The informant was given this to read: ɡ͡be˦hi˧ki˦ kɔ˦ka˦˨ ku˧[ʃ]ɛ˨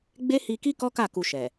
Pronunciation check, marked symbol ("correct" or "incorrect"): correct